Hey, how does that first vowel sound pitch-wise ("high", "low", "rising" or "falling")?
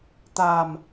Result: low